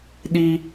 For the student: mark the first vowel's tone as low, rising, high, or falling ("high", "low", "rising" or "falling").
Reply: high